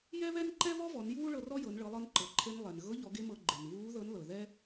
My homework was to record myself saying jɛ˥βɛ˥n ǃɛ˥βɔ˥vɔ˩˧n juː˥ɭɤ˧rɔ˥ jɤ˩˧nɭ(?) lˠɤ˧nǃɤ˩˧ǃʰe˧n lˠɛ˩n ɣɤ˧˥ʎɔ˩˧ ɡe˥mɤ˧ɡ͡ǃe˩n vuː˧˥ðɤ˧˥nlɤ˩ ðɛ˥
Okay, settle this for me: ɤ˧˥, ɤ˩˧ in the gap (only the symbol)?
ɤ˩˧